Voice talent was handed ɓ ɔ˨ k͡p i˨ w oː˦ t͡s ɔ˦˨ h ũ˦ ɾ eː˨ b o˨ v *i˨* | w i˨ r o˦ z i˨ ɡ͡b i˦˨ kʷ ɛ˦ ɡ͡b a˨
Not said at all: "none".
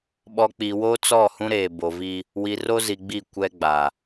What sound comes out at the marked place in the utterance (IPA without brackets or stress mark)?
i˦